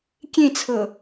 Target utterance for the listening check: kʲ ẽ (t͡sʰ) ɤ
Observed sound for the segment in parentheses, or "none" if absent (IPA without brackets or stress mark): t͡sʰ